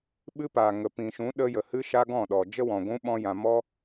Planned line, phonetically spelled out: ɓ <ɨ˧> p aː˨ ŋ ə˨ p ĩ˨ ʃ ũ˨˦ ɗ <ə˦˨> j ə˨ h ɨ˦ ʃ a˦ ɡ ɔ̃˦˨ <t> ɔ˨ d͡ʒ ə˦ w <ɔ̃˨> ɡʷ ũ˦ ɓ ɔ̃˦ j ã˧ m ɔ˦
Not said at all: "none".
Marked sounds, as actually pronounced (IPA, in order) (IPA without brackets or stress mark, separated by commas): ɨ˦, ə˦, ɗ, ɔ̃˨